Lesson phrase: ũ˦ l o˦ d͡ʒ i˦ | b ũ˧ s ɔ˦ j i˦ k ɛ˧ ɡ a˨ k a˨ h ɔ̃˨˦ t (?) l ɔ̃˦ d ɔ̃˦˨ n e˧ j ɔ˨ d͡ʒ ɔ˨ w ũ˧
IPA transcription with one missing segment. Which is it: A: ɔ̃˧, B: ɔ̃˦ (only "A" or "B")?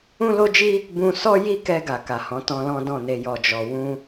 A